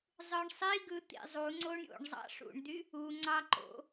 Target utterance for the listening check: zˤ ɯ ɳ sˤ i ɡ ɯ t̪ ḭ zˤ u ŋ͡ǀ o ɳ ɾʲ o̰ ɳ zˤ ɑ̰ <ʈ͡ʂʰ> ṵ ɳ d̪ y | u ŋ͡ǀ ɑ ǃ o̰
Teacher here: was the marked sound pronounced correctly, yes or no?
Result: no